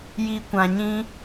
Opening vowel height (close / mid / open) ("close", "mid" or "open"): close